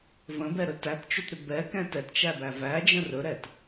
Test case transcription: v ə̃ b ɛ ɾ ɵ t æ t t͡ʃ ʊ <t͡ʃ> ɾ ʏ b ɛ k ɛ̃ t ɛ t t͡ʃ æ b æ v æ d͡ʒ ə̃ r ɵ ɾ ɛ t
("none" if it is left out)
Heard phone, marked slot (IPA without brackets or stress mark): t